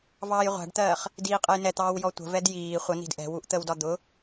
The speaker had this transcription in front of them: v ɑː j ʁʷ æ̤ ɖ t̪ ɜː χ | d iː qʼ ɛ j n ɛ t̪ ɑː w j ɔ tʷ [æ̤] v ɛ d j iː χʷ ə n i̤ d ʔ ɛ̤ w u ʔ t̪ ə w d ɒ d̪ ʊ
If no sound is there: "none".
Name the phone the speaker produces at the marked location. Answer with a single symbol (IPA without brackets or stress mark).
ə̤